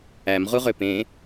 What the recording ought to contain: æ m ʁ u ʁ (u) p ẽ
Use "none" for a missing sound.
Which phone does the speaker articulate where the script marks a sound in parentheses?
ø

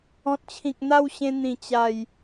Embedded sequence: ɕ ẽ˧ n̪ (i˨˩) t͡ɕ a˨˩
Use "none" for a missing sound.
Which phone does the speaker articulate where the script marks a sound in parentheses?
ĩ˨˩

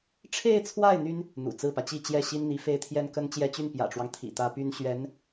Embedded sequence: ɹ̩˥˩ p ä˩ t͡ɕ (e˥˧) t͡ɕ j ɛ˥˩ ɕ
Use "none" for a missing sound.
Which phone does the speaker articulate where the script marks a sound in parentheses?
i˥˧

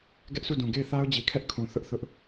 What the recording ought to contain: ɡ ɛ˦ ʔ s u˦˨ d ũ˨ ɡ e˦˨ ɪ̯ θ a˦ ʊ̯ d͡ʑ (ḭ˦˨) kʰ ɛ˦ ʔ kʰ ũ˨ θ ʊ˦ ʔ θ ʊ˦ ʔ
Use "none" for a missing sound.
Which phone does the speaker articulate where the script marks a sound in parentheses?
i˨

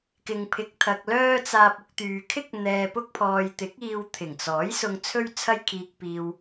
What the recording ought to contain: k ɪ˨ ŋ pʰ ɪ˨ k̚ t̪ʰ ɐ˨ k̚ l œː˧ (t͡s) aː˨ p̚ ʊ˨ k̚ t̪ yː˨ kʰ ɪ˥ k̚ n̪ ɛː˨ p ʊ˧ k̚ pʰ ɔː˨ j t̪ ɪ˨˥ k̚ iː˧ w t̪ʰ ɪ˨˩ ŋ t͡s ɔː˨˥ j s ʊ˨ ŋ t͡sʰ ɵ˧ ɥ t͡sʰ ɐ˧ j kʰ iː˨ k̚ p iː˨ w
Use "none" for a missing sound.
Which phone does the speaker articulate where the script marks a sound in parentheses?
t͡s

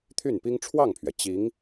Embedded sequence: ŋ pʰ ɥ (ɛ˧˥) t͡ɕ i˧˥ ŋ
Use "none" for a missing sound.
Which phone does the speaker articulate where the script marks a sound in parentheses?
ɛ˩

